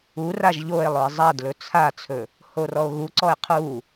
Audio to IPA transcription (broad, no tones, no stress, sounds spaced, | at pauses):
u r a ʒ ʎ o e̯ lˠ ɵ e̯ zˤ a d l ɵ t͡sʰ a t͡sʰ ɵ | h o r ɔ o̯ ɣ u ǀ ɔ e̯ qʰ u